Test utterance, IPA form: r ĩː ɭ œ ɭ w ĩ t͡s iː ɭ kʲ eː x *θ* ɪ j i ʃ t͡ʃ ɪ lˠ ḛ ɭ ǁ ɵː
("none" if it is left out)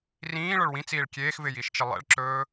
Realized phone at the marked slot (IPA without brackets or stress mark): v